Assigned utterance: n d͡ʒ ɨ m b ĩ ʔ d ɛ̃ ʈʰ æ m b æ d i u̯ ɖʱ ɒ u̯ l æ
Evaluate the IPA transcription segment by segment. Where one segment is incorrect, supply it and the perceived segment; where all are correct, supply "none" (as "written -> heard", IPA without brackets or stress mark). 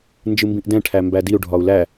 none